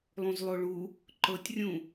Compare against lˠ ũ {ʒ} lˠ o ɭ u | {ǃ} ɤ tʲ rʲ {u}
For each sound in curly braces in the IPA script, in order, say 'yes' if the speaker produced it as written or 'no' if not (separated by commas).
no, yes, no